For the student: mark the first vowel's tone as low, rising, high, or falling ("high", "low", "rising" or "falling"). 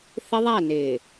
high